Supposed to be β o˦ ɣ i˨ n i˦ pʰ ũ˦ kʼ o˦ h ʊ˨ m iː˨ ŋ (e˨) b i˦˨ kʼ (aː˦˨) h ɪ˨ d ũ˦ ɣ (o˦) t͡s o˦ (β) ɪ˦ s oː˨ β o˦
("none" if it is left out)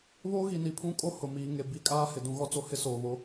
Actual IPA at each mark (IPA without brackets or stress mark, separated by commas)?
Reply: e˨, aː˦, ɔ˦, h